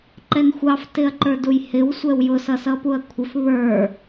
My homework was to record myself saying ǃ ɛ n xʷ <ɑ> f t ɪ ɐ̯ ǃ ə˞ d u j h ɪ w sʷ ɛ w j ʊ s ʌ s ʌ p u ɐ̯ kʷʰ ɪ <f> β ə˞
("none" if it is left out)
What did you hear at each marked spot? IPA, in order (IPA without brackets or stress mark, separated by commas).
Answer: ɑ, f